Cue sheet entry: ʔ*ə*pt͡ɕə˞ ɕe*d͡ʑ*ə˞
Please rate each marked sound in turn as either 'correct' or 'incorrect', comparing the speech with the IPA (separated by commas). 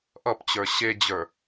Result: incorrect, correct